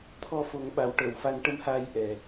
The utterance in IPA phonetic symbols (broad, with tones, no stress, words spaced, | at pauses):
t̪ʰɔ˧fo˨˩˦ŋ ɓa˨˩˦wʈəː˨˩˨wfa˧˥n ʈə˧mhaː˧j ʔɛ˨˩